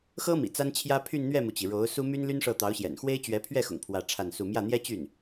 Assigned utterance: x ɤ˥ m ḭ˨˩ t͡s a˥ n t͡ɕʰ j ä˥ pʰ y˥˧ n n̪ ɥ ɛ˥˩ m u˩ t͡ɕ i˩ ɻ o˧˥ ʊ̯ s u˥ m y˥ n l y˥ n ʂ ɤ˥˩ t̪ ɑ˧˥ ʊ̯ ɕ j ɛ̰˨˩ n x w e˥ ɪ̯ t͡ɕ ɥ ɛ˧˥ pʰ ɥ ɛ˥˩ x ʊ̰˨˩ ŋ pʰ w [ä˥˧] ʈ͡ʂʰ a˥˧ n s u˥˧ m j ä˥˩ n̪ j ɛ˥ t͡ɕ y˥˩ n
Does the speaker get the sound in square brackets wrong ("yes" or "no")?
no